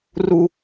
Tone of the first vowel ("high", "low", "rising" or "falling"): high